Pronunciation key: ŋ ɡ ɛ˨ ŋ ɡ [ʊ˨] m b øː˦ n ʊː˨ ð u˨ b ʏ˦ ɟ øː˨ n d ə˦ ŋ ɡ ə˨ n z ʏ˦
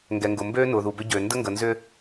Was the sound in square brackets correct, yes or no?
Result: yes